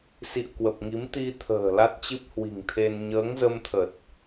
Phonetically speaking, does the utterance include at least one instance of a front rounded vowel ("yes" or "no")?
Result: no